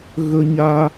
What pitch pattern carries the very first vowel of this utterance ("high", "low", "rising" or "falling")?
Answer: high